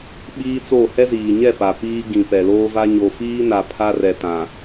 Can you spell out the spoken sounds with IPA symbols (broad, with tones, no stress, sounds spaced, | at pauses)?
ɓ iː˦ t͡s o˦˨ h ɛ˦ z iː˨ ɲ ɛ˦˨ p a˨ p iː˦ ɡ ĩ˨ p ɛ˨ l oː˦ v a˦ ɲ o˨ f iː˦ n a˨ pʰ a˦ r ɛ˨ t ã˨